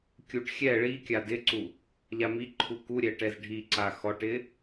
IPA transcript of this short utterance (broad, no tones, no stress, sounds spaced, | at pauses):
kʲ u ʈ xʲ ɛ ɭ i kʲ a d ɪ ǀ u | ʎ a m i ǃʰ u k u ɾʲ ɛ ʈ ɛ z ɖʱ i ǀ a x ɔ ʈ ɪ